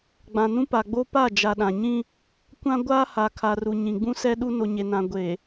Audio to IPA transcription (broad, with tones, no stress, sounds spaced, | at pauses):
ɡ͡b ã˨ n ũ˦ p a˨ ɡ͡b o˦ p a˦˨ d͡ʒ a˨ ɗ ã˨ ɲ ĩ˦ | kʷ ã˦ ɡʷ aː˦ h a˨ kʰ a˨ r u˨ ɲ ĩ˨ ɡ͡b ũ˦ s ɛ˦ ɗ u˦ n o˨ ɲ e˨ n ã˨ ɡʷ e˨